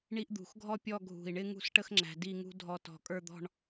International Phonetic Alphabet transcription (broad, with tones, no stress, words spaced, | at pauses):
ɳi˥ʔ d̪ṳ˧˩xɡʱɔ˥ pʲɔ˥˧ɡʱṳ˧˩i̯ɳɪ˥ ŋṳ˥˧sʈə˥xŋ͡ǁæ̤˧ di˥˧ŋṳ˥ dʱɔ˧ tɔ̤˧˩kʼə˞˥˧d̪ɔ̤˥˧ɳ